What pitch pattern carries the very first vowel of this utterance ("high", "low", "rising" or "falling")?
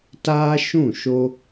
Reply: high